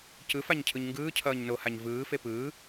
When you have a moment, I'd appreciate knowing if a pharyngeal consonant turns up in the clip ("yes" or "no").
no